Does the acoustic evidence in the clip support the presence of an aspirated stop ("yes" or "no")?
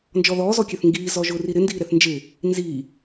no